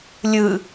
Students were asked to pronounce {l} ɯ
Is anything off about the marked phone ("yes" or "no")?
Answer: yes